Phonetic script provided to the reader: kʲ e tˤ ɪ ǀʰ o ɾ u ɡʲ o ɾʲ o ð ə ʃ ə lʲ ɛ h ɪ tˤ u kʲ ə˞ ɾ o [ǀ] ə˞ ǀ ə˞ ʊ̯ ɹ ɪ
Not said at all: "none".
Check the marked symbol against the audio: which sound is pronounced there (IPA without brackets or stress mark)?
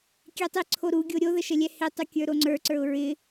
ŋ͡ǀ